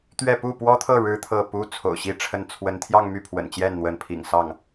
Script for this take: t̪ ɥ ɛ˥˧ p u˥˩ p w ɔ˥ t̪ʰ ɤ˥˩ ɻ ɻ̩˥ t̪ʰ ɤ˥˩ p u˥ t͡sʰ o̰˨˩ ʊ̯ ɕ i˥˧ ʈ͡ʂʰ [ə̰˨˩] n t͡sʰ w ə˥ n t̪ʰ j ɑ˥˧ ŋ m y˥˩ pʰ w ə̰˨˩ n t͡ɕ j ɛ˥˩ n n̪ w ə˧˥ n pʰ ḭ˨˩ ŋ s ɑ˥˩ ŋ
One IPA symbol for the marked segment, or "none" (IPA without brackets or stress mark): ə˥˩